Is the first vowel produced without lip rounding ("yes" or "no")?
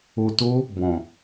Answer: no